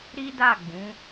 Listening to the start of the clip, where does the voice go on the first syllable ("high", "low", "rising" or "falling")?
high